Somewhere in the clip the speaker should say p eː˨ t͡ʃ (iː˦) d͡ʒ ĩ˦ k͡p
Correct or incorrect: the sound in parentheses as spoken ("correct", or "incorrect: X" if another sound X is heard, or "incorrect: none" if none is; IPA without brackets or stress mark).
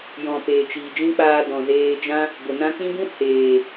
incorrect: iː˨